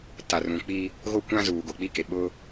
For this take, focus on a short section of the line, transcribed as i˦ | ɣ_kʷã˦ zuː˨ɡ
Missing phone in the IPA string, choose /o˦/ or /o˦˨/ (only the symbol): o˦